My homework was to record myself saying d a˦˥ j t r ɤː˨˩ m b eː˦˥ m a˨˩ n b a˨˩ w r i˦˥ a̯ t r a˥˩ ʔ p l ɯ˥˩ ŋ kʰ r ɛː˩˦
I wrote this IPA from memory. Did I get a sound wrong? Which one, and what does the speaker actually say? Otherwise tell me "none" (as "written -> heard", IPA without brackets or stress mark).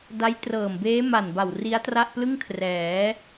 none